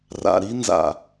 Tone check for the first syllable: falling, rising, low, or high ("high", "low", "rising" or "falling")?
low